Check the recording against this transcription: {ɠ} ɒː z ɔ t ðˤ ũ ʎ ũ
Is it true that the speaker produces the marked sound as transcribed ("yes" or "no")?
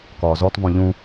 no